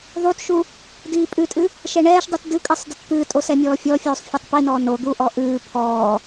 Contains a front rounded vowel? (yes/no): no